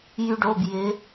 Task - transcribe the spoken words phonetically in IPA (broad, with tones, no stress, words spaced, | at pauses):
jy˥ɖo˧˥˧b jɪ˧˥